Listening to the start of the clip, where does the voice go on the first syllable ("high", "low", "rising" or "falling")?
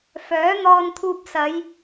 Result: rising